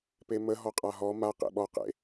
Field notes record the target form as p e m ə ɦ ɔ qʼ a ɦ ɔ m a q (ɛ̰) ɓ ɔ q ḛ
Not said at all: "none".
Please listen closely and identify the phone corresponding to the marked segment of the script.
ḛ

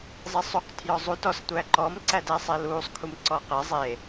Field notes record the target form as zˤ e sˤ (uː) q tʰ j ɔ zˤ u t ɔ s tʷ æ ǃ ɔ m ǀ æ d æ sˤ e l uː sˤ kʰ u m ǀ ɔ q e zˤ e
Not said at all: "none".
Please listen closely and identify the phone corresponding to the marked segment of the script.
u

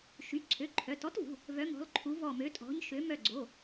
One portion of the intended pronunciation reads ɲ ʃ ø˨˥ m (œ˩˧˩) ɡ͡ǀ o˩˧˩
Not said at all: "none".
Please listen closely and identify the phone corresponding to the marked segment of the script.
œ˧˩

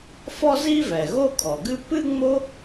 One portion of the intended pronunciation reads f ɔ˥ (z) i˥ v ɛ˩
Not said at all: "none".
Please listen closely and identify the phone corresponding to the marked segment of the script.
z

